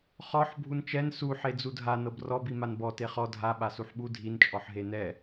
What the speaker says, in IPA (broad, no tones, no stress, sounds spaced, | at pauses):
χ ɔ ħ bʱ u n t͡ʃ ɛ n s u ħ e d͡z u dʱ a n ɤ b r ɔ b i m a n b ɔ t e χ ɔ dʱ a ɓ a s u ħ ɓ u dʱ i n t͡ʃʼ ɔ ħ ɦ e n ɛ